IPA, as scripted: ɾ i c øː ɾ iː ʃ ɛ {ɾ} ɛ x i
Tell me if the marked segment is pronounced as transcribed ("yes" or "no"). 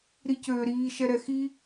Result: yes